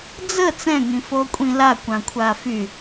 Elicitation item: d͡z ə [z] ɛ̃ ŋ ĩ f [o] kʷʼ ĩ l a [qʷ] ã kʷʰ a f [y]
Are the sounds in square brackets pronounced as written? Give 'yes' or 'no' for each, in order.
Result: no, yes, no, yes

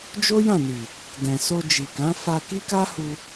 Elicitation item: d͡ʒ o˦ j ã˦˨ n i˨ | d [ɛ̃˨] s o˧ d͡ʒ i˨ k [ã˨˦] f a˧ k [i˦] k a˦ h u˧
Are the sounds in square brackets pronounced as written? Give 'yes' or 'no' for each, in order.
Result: yes, yes, yes

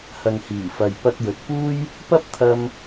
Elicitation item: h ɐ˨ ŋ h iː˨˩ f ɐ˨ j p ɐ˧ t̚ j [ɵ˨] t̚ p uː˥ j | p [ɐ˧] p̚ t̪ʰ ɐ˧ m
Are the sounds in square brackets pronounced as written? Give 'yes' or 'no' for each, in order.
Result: yes, no

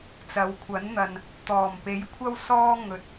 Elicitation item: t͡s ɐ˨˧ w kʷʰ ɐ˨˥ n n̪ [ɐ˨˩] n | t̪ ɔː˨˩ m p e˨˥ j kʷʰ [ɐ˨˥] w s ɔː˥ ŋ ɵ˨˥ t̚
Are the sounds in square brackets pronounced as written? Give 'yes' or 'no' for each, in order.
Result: no, no

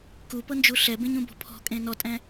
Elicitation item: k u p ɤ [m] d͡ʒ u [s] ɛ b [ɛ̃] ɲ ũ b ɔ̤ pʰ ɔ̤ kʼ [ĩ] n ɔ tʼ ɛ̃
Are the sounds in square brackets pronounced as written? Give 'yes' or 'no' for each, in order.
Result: no, no, no, no

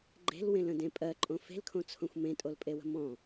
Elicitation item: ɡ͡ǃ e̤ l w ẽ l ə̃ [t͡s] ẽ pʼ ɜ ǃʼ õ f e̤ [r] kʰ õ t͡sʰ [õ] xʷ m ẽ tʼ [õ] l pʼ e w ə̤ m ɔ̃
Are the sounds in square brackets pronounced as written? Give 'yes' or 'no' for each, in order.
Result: no, no, yes, no

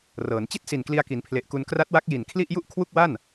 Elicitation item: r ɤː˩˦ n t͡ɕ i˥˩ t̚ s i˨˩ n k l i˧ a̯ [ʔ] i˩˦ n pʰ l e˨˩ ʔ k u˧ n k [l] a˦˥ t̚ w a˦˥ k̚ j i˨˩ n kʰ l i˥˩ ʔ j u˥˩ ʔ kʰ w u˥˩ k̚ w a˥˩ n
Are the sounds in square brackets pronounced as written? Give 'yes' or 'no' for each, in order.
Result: no, no

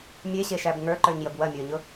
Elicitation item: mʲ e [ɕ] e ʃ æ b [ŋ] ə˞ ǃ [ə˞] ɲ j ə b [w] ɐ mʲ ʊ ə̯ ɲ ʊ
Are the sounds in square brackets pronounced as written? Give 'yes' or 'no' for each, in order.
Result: yes, yes, yes, yes

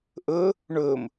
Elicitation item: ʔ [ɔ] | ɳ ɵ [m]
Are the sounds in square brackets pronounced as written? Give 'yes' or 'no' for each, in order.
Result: no, yes

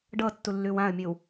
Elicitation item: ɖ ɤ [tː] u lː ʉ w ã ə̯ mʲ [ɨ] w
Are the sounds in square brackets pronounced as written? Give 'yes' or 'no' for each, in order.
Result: yes, yes

